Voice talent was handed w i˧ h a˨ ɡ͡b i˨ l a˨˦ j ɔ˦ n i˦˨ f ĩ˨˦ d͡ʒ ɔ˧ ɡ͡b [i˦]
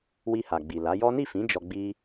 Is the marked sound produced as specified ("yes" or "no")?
yes